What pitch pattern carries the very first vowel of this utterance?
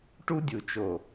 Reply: high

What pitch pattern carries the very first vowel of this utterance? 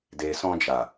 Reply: low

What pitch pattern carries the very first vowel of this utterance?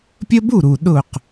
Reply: high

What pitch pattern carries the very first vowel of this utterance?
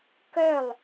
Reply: falling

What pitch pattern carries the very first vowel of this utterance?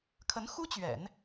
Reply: rising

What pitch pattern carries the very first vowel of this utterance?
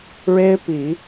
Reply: high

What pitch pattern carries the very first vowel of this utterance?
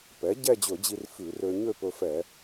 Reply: rising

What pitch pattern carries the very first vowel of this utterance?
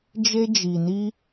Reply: high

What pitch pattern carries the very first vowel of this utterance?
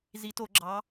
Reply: rising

